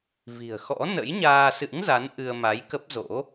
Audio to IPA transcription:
v i̤˨˩ ə̯ x ɔ̰˧˥ n ə̰˧˥ j ɲ aː˧ s ɨ̰˧˥ ŋ z a˨˦ n ʔ ɨ˧ ə̯ m a˨˦ j k ə˦˥ p̚ z o̰˧˥

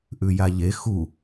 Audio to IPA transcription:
ʔ ʉ j a ʎ e x u

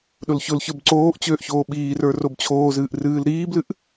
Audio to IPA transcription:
ɗ ʊ l ç ʊ l ç ə˞ b ǀ oː ʔ t͡ɕ øː ʔ ç oː ɓ iː r ə˞ r o b t͡ɕʰ oː z ɨː ʔ r ɨː l ɾ iː b l ɨ ʔ

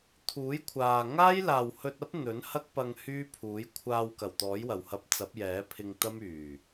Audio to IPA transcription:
t̪ʰ uː˨˥ j kʷʰ aː˨ ŋ aː˥ j l aː˨ w h ɵ˧ t̚ ɐ˥ p̚ n̪ ɵ˨˥ n h ɐ˥ k̚ p ɐ˧ ŋ h yː˥ pʰ uː˨˥ j kʷʰ aː˧ w k ɐ˨˩ w t̪ ɔː˨˥ j w ɐ˨˩ w h ɐ˧ p̚ t͡s ɐ˨˥ p̚ j ɛː˨˥ pʰ ɪ˧ ŋ t̪ ɐ˥ m yː˨˩

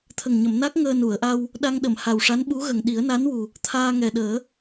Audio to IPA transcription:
t̪ʰ ə˨˩ ŋ ɲ ə˨˩˨ m n a˦˥ k̚ ŋ əː˧ n u˨˩˨ ə̯ ʔ a˧ w | ɗ a˧ ŋ ɗ ə˨˩˨ m h a˨˩ w ʂ a˧˥ n ɓ u˧˥ ɣ ə˨˩ ŋ ɗ i˨˩˦ ə̯ n a˧˥ n w u˨˩ | t̪ʰ aː˧ ŋ ɛ˨˩ ɗ əː˨˩˦

